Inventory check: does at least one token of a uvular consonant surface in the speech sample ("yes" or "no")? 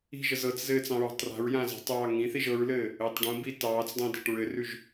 no